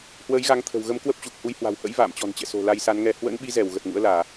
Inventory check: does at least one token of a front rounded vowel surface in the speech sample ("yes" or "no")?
no